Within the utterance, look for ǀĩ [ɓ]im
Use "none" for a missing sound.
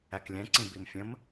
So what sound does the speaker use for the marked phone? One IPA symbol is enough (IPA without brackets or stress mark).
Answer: b